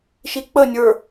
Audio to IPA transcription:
ʃ i k͡p ə nʲ ə˞

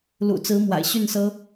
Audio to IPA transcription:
l ṵ˨˩ t͡s ɹ̩˧˥ m w a̰˨˩ ɪ̯ ɕ y˥˩ n s ɤ˥

